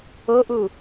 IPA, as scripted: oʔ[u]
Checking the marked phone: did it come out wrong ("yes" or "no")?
no